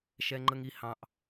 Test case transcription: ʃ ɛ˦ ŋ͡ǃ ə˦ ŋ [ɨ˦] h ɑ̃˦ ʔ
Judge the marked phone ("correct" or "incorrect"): incorrect